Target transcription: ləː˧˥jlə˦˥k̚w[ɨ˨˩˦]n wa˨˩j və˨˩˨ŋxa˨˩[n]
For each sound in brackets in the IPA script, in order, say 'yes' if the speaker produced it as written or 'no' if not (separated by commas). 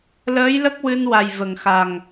no, no